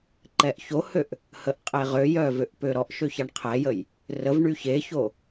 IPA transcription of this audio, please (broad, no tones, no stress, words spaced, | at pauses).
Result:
ǃɛʔçohøʔ | həʔqʼeʁøjœ vøʔpøɾɔʔʃø çaɳqʰɛjəj | rəvɳy çeço